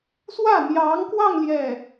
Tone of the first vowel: falling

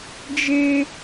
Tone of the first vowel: high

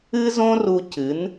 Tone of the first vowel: high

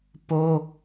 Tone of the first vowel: high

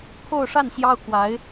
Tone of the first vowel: falling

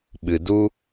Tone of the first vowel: low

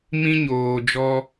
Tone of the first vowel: high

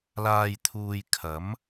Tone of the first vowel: low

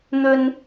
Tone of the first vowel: high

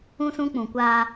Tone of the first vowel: high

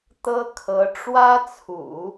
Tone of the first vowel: high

